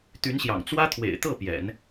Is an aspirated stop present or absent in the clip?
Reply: present